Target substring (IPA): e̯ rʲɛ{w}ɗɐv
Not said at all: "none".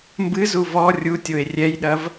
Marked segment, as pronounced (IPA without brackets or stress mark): j